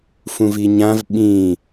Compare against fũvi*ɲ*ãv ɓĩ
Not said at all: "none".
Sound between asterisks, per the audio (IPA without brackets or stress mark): ɲ